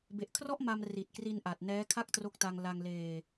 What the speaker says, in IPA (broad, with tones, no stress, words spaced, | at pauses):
be˨˩ʔkʰrɔ˥˩ʔ ma˧m ri˨˩t̚kri˧n ʔa˨˩t̚ nɛː˦˥ kʰa˥˩k̚tro˦˥k̚ta˧ŋ la˧ŋleː˧